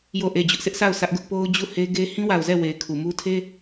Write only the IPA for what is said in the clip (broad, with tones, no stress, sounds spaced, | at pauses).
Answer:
j o˦˨ ʔ e˦˨ d͡ʑ ʊ˦ ʔ sʰ ɪ˦ ʔ sʰ a˦˨ ʊ̯ sʰ ä˦ ʔ ɡ ʊ˦ ʔ p o˦ ʊ̯ d͡ʑ u˦˨ h e˦ ɡ e˦ h ĩ˦ w a˨ ʊ̯ z ɛ˦˨ w e˨ ɪ̯ kʰ u˨ m u˦ tʰ e˦